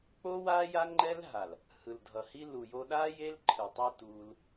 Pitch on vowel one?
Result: high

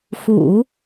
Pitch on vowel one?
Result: low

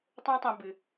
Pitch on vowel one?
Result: high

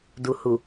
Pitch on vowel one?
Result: low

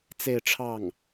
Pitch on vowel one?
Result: falling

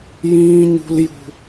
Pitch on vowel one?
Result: high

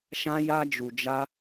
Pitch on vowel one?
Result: high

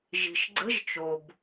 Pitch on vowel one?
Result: low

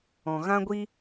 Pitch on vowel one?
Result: low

